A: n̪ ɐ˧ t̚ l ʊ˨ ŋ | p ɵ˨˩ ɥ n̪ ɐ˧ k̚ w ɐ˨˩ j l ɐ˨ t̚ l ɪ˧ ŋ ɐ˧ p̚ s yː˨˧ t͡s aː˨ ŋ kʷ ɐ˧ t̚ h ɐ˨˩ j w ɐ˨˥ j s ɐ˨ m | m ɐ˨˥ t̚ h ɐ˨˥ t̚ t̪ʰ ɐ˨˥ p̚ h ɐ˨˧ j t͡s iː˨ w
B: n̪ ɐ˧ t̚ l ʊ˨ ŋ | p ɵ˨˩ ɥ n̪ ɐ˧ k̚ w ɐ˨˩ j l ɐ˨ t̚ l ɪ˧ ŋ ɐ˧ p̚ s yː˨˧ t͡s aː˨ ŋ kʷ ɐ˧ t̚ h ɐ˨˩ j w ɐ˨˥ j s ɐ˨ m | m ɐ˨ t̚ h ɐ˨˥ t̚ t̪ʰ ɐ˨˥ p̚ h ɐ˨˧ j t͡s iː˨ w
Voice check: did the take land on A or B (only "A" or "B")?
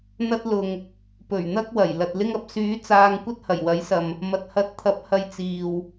B